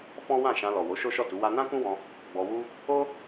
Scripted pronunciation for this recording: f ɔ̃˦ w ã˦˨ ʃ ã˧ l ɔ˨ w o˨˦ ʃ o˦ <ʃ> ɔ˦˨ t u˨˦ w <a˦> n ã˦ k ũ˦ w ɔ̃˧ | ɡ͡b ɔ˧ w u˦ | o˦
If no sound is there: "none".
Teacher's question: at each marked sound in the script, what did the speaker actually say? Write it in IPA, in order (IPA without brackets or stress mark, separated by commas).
ʃ, a˦